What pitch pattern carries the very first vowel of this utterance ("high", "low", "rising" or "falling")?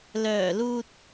low